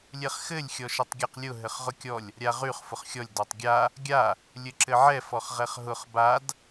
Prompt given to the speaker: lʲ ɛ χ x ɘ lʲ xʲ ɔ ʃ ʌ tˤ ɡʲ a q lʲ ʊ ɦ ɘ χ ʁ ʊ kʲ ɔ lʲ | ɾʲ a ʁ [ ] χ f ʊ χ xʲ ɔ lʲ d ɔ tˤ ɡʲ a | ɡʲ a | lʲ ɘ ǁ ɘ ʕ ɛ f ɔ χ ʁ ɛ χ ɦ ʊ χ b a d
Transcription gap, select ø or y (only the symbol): y